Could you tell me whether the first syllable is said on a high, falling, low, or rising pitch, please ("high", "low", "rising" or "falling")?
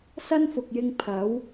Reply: high